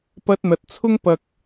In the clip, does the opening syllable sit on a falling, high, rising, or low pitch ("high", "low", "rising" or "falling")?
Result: high